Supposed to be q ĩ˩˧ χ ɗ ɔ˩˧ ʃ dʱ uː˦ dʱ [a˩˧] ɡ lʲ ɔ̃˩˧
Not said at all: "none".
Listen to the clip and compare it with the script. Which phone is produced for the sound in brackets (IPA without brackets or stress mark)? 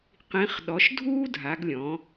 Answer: a˩˧